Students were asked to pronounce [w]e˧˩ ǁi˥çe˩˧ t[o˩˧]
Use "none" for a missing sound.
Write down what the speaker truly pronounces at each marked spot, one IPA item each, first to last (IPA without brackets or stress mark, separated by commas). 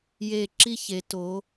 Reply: j, o˩˧